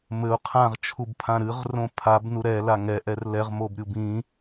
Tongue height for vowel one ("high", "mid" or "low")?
mid